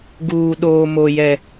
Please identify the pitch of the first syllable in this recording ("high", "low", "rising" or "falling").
low